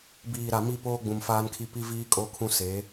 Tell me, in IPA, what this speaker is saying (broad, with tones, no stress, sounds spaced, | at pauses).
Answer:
b iː˨ ɾ a˨ m i˦ p oː˦ ɡ͡b ũ˨ m f aː˦ n kʰ i˦ p i˦ v iː˦ kʼ o˦ kʰ ũ˦ s e˨˦